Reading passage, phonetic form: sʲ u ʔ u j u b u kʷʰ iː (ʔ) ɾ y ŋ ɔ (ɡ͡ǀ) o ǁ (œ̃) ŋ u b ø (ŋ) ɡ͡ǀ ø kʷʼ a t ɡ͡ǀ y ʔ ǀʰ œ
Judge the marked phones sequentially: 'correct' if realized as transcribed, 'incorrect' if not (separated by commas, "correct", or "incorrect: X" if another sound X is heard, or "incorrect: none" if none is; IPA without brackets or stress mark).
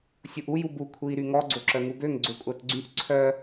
incorrect: none, correct, incorrect: œ, correct